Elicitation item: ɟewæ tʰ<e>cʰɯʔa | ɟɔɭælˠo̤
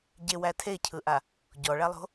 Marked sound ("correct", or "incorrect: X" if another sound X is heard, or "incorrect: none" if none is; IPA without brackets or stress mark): correct